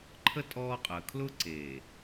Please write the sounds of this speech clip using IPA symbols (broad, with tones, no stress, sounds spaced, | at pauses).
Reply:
ǃʰ ə˦ tʼ ɔː˦ qʼ ə˨ kʰ l ʊ˦ ǀ e˨